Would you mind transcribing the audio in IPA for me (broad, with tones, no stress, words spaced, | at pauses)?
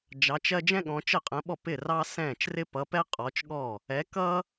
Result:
d͡ʒɑ˨˦t͡ʃɜ˥ d͡ʒɛ̃˥ɠɔ̃˨˦ t͡ʃə˥˩qʼə̃˨˦ɓɔ˥˩p ɪ˥˩ rɑ˥sɛ̃ː˥˩t͡ʃ rɪ˥pʌ˨˦pɛ˥ qʼɔ˨˦t͡ʃɠɔ˥˩ | ɛ˨˦kʌ˥